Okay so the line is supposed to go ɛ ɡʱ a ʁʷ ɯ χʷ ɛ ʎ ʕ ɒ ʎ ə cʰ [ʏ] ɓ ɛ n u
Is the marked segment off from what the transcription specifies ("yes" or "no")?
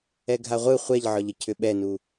no